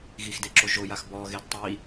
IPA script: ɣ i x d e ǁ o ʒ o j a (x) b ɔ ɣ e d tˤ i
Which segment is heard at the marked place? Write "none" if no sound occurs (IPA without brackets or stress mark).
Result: x